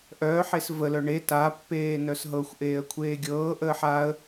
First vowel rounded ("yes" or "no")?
yes